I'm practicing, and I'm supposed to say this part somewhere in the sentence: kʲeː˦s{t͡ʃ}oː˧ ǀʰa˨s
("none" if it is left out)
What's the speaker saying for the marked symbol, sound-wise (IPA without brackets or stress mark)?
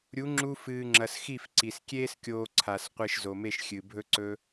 kʲ